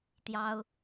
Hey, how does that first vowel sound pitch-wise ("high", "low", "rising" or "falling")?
high